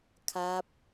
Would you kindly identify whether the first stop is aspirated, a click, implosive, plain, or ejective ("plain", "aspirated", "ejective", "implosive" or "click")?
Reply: aspirated